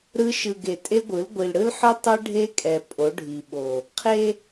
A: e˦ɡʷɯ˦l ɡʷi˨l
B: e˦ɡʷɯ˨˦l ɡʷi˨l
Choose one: B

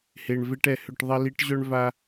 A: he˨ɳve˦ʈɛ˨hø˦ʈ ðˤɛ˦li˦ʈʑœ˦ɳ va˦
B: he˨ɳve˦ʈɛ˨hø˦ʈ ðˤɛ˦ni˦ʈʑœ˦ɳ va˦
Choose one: A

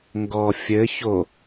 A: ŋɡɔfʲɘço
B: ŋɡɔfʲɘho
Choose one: A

